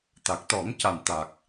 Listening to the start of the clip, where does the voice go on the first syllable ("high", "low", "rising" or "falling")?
low